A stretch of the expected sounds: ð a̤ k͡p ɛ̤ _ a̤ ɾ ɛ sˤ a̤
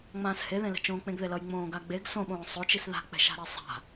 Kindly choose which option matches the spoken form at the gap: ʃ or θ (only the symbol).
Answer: ʃ